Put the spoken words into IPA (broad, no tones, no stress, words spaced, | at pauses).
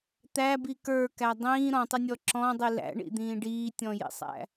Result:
t̪æbi kə˞kæ dˤĩː ɾɔ̃tˤɪnʲɔ ǁɔ̃dˤi læ̰ɳḭd̪ĩː ɖiːtʲɔ̃jḭsˤæ̰